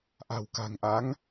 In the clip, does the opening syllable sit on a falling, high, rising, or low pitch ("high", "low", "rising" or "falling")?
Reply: low